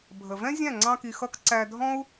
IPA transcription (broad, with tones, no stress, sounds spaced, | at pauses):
bʱ ə˨ v ɛ̃˦ zʲ æ̃˦˨ ŋ͡ǀ ɑ̃˦ k i˧ x ʌ˦ k ǀ æ˧ dʱ ɔ̃˦ u̯